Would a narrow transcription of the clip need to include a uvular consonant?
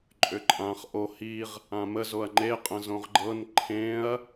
yes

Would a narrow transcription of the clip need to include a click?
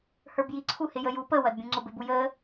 yes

